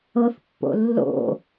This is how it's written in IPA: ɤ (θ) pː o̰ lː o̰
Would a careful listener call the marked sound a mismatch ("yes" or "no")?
no